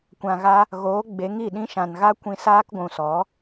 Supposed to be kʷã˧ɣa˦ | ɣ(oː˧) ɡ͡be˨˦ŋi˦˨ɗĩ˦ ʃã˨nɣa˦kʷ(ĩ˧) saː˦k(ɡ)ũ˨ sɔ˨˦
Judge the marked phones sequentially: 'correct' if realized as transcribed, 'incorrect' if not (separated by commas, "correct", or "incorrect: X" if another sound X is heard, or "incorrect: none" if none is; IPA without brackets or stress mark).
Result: incorrect: oː˨˦, correct, incorrect: ɡʷ